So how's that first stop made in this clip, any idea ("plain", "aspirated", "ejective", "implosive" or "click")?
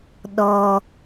implosive